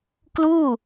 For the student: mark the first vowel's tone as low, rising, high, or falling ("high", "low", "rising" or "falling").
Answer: falling